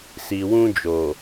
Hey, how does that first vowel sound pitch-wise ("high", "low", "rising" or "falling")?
low